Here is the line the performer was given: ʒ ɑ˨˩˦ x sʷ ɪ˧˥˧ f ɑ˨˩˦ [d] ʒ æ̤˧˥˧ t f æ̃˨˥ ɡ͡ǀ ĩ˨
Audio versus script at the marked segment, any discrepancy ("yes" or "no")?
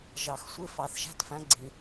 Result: yes